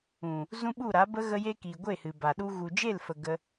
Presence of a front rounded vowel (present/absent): absent